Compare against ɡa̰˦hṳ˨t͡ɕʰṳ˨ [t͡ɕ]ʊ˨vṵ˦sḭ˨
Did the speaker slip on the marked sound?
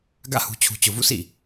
no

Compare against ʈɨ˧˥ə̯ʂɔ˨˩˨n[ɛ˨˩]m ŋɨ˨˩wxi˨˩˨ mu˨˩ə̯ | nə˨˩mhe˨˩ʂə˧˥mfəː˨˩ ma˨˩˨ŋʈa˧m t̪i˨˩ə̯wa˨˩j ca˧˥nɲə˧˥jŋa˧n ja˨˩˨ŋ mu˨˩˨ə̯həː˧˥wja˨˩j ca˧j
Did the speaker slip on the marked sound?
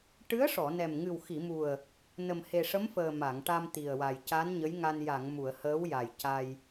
no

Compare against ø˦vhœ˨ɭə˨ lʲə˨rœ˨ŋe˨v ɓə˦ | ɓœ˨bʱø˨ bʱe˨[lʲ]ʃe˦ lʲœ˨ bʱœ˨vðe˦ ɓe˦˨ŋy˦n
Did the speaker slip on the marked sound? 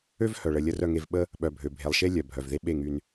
yes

